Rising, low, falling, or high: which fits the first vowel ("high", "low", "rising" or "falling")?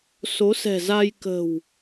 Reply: rising